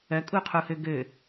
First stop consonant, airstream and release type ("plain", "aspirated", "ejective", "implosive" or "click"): ejective